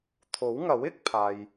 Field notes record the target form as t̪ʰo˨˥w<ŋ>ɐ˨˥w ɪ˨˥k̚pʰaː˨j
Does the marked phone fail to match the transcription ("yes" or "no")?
no